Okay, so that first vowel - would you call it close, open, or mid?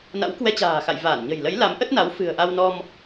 open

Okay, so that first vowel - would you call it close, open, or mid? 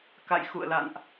open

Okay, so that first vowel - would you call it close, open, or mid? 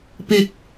close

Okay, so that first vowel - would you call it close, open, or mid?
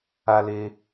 open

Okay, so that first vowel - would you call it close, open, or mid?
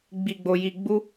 close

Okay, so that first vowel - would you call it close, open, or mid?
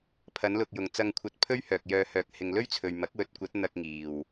open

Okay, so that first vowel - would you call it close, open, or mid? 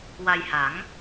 open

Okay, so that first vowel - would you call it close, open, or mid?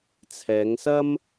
mid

